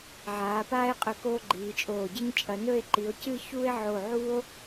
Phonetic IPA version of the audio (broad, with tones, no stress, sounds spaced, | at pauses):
ʕ aː˩˧ p aː˥ e̯ qʼ ɵ˧ k oː˥ ɡ͡ǃ iː˩˧ t͡ʃʼ oː˧˩ ɟ ɨ˥ ɲ t͡ʃʼ ɐ˩˧ n ɵ˥˧ e̯ ǃ i˩˧ o̯ c ɨ˥˧ ç u˥ e̯ ʕ o˧˩ ʕ u˥ o̯